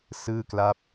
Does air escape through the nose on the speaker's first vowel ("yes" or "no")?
no